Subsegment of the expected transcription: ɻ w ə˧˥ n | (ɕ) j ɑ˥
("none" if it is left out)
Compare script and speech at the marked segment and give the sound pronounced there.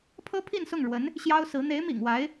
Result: ɕ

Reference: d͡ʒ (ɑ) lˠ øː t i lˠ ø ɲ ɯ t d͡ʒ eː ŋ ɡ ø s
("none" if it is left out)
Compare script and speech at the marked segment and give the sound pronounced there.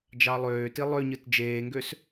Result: ɑ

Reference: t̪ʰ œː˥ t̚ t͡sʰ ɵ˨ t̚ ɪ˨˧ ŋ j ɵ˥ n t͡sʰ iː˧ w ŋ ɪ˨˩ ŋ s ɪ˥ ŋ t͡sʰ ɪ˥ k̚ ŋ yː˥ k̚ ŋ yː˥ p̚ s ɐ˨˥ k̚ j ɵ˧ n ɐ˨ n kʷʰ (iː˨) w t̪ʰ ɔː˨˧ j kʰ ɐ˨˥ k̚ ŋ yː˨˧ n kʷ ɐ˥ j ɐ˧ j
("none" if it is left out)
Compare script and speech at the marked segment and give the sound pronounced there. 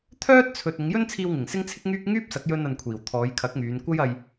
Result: iː˨˩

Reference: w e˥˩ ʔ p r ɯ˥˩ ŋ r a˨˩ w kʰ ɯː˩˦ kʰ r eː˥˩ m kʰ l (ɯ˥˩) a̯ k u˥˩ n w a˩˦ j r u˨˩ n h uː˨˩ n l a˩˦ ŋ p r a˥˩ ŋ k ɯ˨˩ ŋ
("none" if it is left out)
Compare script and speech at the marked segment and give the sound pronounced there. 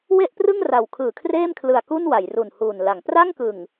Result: ɯ˨˩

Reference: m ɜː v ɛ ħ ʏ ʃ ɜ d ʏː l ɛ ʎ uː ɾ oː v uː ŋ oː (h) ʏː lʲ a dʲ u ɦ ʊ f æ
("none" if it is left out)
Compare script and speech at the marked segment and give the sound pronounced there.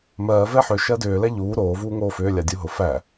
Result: f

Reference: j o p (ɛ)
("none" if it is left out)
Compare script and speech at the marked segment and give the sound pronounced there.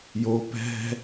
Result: ɛ̤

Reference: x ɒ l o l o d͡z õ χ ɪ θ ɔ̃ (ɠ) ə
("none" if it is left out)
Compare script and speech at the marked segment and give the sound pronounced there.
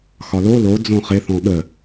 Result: ɠ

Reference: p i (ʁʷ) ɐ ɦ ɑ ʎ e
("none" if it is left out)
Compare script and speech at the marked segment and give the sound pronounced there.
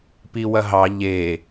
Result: w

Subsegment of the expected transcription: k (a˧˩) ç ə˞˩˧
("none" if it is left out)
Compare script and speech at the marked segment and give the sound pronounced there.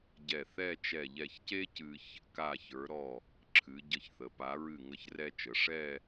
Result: a˧˩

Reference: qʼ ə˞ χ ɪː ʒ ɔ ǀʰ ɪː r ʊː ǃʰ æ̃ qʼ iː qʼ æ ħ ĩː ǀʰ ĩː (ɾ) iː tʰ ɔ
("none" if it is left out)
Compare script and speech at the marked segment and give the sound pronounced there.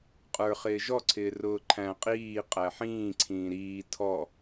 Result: ɾ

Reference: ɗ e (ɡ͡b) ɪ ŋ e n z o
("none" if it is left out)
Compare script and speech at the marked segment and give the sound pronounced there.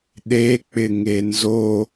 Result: k͡p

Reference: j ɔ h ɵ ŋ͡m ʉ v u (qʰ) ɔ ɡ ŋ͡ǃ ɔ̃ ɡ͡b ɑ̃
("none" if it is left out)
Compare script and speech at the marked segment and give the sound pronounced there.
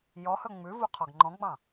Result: qʰ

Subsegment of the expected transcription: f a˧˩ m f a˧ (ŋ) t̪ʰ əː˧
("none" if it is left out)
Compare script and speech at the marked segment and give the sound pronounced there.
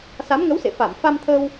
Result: m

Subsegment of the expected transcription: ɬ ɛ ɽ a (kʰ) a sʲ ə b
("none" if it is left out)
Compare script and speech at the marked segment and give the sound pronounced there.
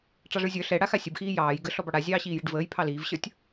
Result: x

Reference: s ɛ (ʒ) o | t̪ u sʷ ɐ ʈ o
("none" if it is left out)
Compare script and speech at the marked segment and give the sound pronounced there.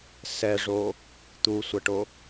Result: ʐ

